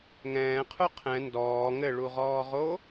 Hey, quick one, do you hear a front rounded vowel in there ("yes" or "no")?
no